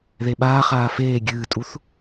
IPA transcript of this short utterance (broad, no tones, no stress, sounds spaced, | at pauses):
ð e ɓ aː χ aː f eː ɡʲ ɨː tʼ u θ